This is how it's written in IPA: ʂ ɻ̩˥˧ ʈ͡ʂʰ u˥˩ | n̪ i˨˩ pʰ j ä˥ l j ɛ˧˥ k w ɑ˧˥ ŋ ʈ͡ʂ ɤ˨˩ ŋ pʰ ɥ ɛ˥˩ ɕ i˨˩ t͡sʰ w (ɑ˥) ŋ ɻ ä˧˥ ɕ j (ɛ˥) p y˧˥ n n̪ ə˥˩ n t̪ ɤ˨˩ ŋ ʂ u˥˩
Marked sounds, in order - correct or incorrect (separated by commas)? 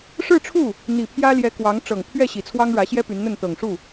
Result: correct, correct